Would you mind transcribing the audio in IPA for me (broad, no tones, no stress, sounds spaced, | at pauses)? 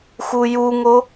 x u j u ŋ o